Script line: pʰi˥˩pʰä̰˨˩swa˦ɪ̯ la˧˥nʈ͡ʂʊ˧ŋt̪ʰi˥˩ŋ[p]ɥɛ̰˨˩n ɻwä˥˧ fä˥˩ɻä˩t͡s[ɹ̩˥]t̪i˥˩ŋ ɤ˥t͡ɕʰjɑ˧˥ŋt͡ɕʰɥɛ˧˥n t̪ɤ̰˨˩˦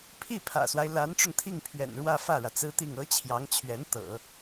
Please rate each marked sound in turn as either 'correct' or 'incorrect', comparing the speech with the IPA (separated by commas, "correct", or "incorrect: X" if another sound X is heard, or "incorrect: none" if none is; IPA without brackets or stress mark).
incorrect: pʰ, correct